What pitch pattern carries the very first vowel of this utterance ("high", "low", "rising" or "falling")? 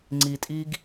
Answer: low